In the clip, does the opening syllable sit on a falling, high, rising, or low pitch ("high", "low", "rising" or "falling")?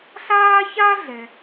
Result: high